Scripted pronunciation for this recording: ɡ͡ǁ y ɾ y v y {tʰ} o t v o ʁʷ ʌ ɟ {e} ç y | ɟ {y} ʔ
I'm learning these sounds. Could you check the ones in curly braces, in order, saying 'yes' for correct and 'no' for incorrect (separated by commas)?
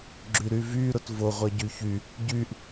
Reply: no, no, yes